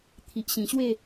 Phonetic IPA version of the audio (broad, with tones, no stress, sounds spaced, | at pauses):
t̪ʰ i˨ ʔ ɕ ĩ˨˩ ɕ w e˥˧